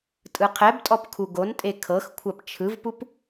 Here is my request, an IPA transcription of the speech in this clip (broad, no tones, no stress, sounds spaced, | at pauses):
tʼ ɯ qʰ ɛ b tʼ ɔ p kʰ u ɡ o n tʼ e kʰ ɤ x kʷʰ a p t͡ʃʰ ɯ v p u p